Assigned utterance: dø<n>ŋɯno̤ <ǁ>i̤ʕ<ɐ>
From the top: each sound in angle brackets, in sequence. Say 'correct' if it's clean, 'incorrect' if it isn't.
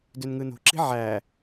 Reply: correct, correct, incorrect: æ

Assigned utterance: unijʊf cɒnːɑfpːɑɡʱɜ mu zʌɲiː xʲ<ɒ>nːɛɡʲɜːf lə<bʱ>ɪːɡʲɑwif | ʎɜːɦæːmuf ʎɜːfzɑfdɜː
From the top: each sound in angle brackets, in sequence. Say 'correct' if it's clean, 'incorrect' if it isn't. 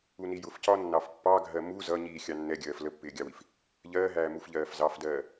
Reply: incorrect: ɑ, incorrect: pː

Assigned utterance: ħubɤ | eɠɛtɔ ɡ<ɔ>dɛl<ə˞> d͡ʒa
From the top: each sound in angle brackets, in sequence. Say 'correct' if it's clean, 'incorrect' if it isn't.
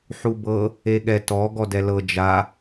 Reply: correct, incorrect: ɤ

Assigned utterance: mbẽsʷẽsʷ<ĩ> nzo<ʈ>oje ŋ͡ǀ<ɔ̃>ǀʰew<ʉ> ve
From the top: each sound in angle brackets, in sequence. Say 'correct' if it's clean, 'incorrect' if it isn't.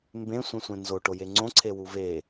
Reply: incorrect: ẽ, correct, incorrect: õ, incorrect: u

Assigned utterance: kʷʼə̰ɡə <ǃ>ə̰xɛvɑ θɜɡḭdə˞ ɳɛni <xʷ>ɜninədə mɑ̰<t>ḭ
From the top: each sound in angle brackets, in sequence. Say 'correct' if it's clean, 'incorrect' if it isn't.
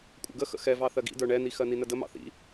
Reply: incorrect: x, incorrect: x, incorrect: θ

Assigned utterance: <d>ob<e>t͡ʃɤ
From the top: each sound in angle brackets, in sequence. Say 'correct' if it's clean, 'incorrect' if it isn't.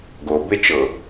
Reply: incorrect: ɡ, correct

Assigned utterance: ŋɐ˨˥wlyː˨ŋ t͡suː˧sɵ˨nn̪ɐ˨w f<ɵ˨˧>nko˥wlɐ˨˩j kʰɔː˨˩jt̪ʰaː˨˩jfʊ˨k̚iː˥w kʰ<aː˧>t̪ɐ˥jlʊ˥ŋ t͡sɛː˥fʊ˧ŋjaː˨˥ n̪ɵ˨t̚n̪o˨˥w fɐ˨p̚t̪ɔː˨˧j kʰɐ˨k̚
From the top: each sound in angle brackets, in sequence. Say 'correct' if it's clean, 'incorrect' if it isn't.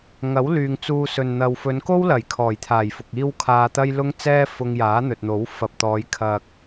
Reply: correct, correct

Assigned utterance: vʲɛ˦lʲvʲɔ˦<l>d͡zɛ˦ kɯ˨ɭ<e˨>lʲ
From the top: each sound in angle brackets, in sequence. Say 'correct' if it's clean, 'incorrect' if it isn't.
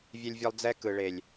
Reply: incorrect: lˠ, correct

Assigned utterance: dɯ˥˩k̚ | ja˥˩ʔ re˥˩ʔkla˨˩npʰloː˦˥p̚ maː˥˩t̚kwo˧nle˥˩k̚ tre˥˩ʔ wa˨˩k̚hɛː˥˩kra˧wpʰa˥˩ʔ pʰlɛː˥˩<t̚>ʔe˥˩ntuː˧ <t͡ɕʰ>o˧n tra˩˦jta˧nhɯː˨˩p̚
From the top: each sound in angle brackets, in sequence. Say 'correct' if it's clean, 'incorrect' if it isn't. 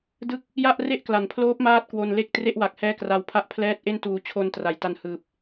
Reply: correct, correct

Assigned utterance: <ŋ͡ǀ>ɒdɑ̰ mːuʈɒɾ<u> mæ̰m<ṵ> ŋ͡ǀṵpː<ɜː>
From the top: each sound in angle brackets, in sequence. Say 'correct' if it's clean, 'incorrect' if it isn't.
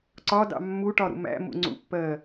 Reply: incorrect: ǀ, incorrect: ṵ, correct, correct

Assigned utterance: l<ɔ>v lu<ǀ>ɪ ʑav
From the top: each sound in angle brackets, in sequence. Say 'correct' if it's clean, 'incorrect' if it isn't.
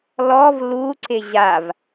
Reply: correct, correct

